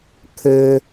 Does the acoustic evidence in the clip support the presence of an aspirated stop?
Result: yes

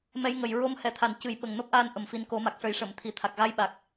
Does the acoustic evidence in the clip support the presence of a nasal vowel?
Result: no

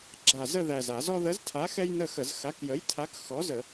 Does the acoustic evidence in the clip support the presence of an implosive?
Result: no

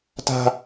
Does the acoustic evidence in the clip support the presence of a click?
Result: no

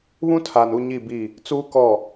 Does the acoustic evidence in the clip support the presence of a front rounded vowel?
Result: no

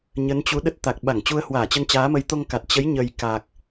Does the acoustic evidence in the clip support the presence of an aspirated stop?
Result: no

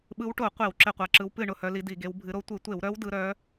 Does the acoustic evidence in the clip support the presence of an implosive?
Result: yes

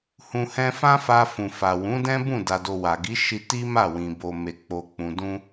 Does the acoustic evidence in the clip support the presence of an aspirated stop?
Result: no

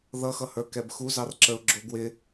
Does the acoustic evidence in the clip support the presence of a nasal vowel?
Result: no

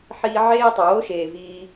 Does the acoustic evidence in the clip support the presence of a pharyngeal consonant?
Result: yes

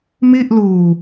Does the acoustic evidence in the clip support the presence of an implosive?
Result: no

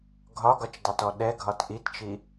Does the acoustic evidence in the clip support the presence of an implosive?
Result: yes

